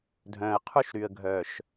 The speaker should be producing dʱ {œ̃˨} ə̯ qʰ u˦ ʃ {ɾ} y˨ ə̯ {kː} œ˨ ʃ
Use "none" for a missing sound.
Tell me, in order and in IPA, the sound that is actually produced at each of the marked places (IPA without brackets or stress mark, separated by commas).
œ̃˨, ɾ, ɡʱ